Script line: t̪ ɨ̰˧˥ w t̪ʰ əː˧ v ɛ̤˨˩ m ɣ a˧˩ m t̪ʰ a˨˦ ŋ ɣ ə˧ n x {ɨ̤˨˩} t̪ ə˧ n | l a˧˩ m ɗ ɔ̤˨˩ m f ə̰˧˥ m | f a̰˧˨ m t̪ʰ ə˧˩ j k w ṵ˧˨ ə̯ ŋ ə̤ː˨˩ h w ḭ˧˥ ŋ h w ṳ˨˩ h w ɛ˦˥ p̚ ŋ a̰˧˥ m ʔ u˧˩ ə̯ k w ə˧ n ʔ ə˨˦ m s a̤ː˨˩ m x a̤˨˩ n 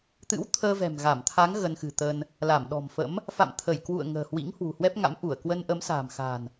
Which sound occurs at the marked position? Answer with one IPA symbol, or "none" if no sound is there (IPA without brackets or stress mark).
ɨ̤˨˩